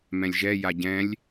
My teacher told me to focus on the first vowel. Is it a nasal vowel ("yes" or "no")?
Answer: yes